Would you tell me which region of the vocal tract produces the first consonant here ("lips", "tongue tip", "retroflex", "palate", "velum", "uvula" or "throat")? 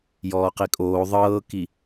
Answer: palate